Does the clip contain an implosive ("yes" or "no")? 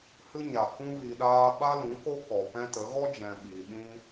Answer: yes